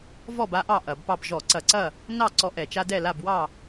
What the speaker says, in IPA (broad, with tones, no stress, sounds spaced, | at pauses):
v ɔ˥˨ b a˦ ʔ ɑ˥˨ ʔ ɐ˧˩˧ b p ɑ˥˨ b ʒ ɔ˧˩˧ ǀ ɐ˧˩˧ ǀ ɐ˥˨ | n ɑ˥˨ ǀ ɔ˦ ʔ ɛ˧˩˧ t͡ʃ a˦ d ɛ˥˨ l a˥˨ b w ɑ˥˨